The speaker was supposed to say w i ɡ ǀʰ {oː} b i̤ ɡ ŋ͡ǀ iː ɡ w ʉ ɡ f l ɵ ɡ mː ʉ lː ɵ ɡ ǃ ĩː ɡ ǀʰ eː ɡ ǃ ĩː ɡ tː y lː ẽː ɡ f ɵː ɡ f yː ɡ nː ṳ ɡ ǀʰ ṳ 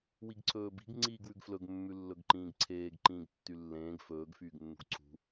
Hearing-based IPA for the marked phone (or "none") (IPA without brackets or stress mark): ɵː